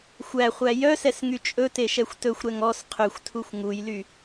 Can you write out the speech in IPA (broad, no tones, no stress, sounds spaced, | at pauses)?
xʷ æ χʷ æ j œ s ɛ s ŋ y t͡ʃʼ ɵ t e ʃ ɛ xʷ t ɵ xʷ ɾ ɛ ŋ ɔ s qʰ ø xʷ tʰ u xʷ ŋ u j l y